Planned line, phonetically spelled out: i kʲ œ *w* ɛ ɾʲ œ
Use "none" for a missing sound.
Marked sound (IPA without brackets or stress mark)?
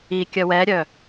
w